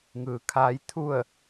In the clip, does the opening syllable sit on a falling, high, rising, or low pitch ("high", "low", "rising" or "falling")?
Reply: low